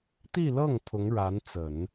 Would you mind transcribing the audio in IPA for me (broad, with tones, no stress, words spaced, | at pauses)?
t̪i˥˧lɤ˥˩ŋ pʰʊ˧˥ŋ ɻa˧˥nt͡sə˨˩˦n